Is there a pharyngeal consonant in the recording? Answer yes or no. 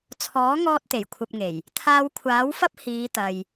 no